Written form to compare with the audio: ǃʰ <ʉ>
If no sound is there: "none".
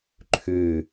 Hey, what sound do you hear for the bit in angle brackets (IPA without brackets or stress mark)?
ʉ